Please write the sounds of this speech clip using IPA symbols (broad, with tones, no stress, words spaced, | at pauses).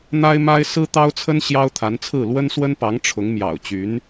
n̪a˥ɪ̯ma˥ɪ̯ sɹ̩˥t̪ɑ˥ʊ̯t͡sʰə˥n ɕjɑ˥ʊ̯t̪ʰa˧˥nt͡sʰɹ̩˥˩ lwə˥nswə˥npɑ˧˥ŋ ʈ͡ʂʰʊ˧˥ŋmjɑ̰˨˩ʊ̯ t͡ɕy˧˥n